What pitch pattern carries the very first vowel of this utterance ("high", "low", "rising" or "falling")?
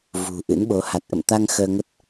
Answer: low